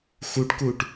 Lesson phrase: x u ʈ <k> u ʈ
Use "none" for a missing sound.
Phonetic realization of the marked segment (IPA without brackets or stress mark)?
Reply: k